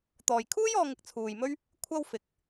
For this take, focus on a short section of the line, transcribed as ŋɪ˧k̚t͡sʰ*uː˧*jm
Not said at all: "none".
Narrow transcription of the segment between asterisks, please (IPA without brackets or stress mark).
uː˨